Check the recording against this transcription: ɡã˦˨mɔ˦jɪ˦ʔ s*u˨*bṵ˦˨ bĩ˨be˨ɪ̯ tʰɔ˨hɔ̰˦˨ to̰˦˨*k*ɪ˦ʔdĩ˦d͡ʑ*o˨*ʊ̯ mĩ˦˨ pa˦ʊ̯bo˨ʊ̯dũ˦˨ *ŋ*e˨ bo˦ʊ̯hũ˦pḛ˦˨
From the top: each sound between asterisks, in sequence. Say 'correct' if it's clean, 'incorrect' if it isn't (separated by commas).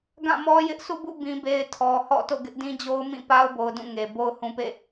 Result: incorrect, incorrect, incorrect, correct